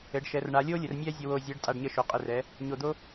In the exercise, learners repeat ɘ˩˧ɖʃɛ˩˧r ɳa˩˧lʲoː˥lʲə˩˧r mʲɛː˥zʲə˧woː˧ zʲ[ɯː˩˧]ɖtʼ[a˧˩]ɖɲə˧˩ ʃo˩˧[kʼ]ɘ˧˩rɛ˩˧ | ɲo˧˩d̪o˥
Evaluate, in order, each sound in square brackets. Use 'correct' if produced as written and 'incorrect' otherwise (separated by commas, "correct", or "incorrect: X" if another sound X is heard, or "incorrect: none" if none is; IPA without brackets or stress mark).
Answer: correct, correct, incorrect: qʼ